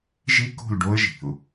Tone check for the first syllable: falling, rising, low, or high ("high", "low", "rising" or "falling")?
high